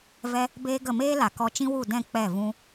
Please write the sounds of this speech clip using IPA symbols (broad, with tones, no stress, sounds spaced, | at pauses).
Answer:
v ɛ˦ | b eː˦ ɡ ə˦˨ m eː˦ l a˨ k ɔ˧ t͡ʃ ĩ˦ w u˦˨ d ɛ̃˦˨ k͡p ɛ˦˨ v ũ˦